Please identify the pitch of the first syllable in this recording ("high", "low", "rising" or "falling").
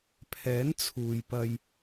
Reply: rising